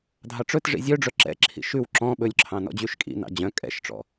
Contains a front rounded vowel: yes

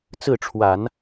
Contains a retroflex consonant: yes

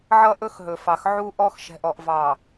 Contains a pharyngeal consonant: yes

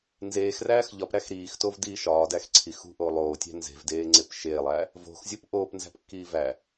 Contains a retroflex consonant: no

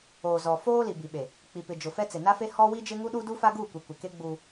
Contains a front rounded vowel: no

